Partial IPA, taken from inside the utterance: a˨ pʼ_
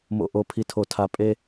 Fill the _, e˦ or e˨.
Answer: e˦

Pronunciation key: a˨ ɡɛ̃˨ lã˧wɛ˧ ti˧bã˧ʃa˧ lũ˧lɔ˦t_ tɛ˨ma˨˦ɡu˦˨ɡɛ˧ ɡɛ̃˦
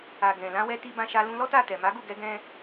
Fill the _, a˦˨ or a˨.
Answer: a˦˨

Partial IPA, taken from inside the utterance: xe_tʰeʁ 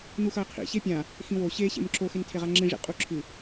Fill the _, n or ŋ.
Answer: n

